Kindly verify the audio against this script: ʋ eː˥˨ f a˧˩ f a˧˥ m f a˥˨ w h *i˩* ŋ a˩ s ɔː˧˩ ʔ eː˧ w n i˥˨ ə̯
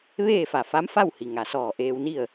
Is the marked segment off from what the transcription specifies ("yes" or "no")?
no